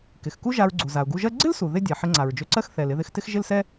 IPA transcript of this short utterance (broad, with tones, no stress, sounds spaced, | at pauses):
k ɪ˩ x k u˥ ʒ a˧ ɹ ɡ͡ǀ u˩ z a˩ ʊ̯ ɡ u˧ ʒ ɜ˥ ɡ͡ǀ ɪ˥ l s u˩ ð ɪ˥ dʲ ɛ˩ ħ ɪ˧ ŋ͡ǀ a˩ ɹ d͡ʒ ø˧ ǀ ɜ˥ x θ ɛ˩ l ɪ˧ ð ɪ˧ x t ɪ˥ x ʒ ɪ˥ l s ɛ˥